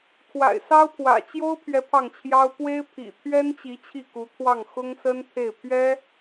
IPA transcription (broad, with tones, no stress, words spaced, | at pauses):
kʰwa̰˨˩ɪ̯sɑ˥ʊ̯pʰwä̰˨˩ t͡ɕjo˥ʊ̯pʰɥɛ˧˥ pʰɑ˥˩ŋt͡ɕʰjɑ˥ʊ̯ pwe˥ɪ̯pʰḭ˨˩ t̪ʰɥɛ˥nt͡ɕi˧˥ t͡ɕʰi˥˩ku˧˥t̪ʰwɑ˥˩ŋ xʊ˥ŋsə˥nt̪ʰe˥˩ɪ̯ pʰɥɛ˥